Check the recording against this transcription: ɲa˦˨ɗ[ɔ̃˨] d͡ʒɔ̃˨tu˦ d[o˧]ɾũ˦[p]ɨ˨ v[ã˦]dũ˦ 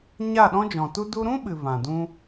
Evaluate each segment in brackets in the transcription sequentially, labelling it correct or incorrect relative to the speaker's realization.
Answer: incorrect: ɔ̃˦, incorrect: u˧, incorrect: ɓ, incorrect: ã˨

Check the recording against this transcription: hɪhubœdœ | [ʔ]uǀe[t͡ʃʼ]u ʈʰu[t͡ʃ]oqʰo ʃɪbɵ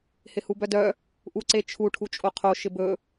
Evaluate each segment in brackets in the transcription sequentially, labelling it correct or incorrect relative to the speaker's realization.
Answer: correct, incorrect: t͡ʃʰ, incorrect: t͡ʃʼ

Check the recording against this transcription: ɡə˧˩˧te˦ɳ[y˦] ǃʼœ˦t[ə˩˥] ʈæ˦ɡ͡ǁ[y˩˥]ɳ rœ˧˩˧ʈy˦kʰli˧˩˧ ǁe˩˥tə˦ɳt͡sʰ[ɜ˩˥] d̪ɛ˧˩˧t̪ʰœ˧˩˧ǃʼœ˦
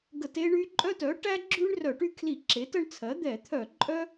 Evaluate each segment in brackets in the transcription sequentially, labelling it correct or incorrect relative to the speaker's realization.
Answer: correct, incorrect: œ˩˥, incorrect: y˦, correct

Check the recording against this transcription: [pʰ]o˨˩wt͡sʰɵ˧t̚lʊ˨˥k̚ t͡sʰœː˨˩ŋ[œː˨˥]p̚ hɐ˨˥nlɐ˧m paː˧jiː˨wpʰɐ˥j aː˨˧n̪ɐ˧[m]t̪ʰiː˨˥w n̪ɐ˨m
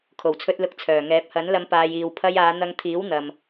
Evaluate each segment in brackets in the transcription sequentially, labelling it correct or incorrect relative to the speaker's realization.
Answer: incorrect: kʰ, incorrect: ɛː˨˥, incorrect: ŋ

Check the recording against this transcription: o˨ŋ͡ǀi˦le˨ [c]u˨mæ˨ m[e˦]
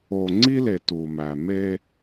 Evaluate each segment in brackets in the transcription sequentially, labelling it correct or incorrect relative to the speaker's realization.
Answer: incorrect: t, correct

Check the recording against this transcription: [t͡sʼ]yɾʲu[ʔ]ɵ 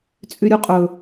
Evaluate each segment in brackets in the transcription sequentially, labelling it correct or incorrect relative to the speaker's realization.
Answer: correct, incorrect: qʼ

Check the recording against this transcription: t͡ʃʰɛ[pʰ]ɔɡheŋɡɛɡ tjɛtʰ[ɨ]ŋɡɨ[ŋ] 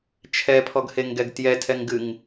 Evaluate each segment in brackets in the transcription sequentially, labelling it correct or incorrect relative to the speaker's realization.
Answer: correct, incorrect: ɛ, correct

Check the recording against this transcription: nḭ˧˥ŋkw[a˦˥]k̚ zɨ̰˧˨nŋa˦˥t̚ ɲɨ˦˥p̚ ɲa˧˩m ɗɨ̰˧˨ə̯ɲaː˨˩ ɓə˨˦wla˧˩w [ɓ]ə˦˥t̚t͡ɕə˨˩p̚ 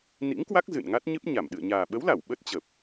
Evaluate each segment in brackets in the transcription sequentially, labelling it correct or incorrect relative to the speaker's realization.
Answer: correct, correct

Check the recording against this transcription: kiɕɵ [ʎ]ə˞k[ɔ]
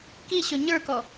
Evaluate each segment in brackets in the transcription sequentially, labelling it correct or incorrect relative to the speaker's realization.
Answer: incorrect: ɲ, correct

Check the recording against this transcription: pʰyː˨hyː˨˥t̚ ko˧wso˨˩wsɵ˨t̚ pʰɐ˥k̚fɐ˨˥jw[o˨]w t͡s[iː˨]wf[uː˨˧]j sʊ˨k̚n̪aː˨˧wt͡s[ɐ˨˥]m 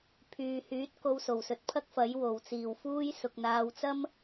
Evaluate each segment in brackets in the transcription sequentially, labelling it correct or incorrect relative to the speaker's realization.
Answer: incorrect: o˨˩, incorrect: iː˨˩, incorrect: uː˥, incorrect: ɐ˥

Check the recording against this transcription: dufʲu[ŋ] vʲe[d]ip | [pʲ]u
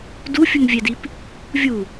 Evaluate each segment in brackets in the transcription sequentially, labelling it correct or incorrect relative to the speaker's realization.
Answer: correct, correct, incorrect: vʲ

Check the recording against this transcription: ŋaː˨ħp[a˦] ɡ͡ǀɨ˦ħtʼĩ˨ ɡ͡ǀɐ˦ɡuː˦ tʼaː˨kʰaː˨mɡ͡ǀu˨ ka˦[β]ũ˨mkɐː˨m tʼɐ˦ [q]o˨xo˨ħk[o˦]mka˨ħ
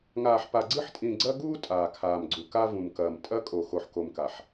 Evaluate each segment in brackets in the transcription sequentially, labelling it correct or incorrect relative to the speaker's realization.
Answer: incorrect: a˨, incorrect: v, incorrect: kʼ, incorrect: o˨

